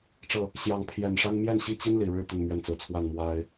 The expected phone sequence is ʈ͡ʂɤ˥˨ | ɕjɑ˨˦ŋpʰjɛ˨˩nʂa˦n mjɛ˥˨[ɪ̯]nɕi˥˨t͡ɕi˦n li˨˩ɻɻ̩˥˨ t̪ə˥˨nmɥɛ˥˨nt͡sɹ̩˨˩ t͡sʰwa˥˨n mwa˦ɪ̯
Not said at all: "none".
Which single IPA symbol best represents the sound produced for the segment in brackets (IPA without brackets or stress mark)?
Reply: none